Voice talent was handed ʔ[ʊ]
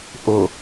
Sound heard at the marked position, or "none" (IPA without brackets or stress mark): ʊ